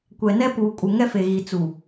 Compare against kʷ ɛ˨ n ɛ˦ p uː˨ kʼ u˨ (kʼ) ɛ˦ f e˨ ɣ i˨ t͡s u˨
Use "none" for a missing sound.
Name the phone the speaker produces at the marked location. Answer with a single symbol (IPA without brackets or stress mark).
ŋ